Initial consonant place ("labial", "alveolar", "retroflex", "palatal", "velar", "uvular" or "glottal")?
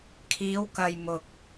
velar